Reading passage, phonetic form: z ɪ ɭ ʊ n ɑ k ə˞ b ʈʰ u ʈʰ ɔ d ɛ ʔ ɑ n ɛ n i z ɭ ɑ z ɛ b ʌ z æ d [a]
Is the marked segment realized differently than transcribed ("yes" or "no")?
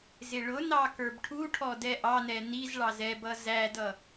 yes